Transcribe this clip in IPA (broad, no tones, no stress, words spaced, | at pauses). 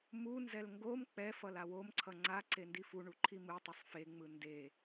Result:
munzɛl ŋɡom k͡pɛfʌl awomǀʰʌ ŋ͡ǀa ǀendifuɳu ǃʰimɯtˤusˤ feŋ͡mɯ nde